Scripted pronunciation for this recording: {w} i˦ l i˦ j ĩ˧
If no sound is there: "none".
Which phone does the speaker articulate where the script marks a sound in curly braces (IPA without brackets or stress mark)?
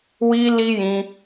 w